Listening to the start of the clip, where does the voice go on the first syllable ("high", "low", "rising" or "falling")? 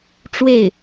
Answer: falling